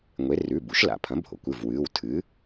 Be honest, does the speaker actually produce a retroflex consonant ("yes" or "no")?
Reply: no